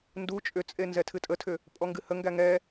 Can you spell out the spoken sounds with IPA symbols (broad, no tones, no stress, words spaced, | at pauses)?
ndu t͡ʃʼʏt͡sʼe nzɛtʰɨtʼətʰʏ | pʼɔŋɡɨhəŋɡæ ŋɛ